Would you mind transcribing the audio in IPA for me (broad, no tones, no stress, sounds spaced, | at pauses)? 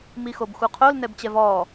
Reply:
m i x o b x u qʰ o l n ɛ b t͡ɕ ɛ v ɔː